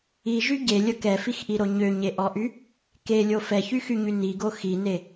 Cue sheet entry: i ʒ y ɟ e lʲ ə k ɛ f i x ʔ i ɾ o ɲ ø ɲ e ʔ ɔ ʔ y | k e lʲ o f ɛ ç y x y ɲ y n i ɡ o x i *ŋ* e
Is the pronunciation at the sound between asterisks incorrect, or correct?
incorrect